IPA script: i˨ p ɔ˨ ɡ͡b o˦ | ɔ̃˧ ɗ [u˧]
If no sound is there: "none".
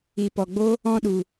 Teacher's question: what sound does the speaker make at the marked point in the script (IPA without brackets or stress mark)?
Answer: u˨